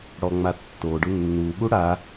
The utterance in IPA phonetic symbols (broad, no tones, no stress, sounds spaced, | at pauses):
ɽ ɔ ŋ͡m a tː o ɖ ʊ nː u ɠ u ɽ a